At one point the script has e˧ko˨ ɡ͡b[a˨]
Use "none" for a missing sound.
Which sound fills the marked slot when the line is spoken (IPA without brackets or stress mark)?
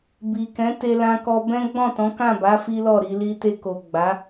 a˨˦